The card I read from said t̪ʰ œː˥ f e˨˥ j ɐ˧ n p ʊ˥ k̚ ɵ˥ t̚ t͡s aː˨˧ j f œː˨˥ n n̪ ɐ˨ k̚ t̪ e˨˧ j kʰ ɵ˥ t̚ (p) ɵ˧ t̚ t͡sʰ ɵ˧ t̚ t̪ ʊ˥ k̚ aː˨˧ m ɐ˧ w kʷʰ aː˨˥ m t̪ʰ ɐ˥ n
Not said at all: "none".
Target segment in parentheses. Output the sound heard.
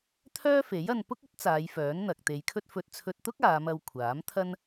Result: f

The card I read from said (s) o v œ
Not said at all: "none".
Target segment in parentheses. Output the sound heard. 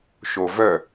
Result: ʃ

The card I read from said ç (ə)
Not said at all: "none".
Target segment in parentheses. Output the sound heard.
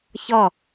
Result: ʌ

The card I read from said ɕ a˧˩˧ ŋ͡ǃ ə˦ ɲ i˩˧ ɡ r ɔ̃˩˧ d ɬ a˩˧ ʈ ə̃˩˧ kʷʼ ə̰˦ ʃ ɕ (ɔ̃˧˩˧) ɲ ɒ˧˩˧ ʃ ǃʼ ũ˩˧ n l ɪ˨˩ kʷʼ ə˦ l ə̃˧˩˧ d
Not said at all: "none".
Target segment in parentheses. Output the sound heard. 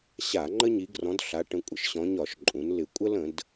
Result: ɔ̃˩˧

